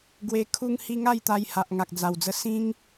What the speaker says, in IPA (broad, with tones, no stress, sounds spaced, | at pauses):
ɡ w e˧ kʰ u˦ ŋ h i˦ ŋ a˥˧ j t̪ a˧ j h a˨ ʔ ŋ a˨ k̚ d͡z a˨˩ w d͡z ə˧ s ĩ˦ ŋ